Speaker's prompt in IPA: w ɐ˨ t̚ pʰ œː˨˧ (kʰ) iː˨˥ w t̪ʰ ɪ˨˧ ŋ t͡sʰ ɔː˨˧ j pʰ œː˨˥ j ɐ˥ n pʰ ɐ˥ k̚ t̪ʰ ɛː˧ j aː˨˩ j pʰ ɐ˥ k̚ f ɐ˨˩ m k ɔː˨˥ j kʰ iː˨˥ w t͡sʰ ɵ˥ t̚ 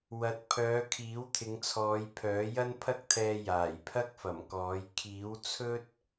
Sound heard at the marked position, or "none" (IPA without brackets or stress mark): kʰ